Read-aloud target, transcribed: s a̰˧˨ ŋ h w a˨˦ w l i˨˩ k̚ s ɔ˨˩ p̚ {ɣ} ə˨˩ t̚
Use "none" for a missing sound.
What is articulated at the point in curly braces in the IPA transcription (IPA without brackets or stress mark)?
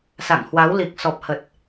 h